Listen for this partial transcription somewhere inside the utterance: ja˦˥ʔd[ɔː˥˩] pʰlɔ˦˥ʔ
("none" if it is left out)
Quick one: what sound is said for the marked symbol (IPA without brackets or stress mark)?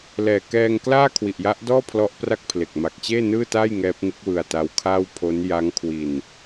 ɔː˥˩